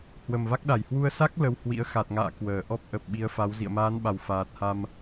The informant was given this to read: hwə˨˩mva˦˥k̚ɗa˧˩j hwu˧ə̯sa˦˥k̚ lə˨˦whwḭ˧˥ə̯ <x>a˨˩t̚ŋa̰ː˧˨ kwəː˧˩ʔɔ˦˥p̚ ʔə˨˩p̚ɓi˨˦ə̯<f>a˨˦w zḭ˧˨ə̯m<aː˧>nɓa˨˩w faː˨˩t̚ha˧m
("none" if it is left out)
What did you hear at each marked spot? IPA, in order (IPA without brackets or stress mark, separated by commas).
x, f, aː˨˦